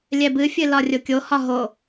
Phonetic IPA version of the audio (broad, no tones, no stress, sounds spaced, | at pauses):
lʲ ɛ b ɨ fʲ ɨ l ɒ rʲ o kʲ o h ɒ ɦ o